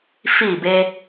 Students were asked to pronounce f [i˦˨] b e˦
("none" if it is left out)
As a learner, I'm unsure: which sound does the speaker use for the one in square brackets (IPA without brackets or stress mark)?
i˦˨